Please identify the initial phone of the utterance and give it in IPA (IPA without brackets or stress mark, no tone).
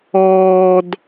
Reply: ɔː